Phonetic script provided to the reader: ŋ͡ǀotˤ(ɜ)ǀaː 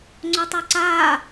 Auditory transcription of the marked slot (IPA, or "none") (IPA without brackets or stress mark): ɜ